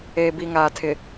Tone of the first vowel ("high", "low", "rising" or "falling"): low